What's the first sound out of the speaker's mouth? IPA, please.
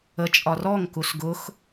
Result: ə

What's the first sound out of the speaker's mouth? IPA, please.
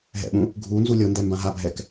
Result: ɦ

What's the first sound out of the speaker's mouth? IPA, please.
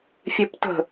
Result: fʲ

